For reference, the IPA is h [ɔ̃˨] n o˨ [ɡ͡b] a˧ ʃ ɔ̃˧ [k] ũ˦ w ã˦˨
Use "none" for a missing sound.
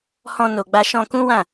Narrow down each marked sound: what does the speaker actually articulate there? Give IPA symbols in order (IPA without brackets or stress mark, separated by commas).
ɔ̃˧, ɡ͡b, k